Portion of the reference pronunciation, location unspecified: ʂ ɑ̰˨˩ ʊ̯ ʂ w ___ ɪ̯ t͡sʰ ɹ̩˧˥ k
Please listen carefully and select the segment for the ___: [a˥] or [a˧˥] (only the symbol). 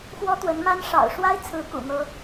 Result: a˥